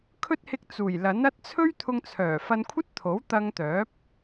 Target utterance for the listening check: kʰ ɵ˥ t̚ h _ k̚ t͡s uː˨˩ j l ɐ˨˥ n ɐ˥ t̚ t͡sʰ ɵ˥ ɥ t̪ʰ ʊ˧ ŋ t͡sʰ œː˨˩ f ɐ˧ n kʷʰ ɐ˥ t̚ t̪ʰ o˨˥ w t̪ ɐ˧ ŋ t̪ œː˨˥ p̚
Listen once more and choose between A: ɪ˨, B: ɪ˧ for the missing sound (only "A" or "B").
B